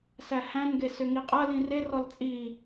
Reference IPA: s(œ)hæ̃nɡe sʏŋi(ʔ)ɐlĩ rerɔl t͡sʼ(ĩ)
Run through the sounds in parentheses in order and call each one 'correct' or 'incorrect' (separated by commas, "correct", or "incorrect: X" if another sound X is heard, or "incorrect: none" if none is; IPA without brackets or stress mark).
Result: incorrect: æ, incorrect: qʼ, incorrect: i